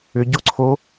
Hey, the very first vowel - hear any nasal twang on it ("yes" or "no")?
no